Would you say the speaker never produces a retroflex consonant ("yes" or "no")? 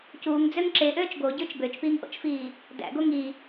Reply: yes